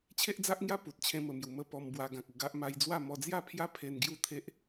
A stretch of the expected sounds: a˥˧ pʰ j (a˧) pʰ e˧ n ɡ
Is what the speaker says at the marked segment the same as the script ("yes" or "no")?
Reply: no